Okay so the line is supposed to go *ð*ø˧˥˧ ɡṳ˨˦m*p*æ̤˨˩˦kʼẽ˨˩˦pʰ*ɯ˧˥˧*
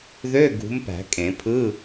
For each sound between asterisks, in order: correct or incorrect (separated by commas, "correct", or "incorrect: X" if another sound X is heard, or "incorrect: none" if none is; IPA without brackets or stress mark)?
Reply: correct, correct, correct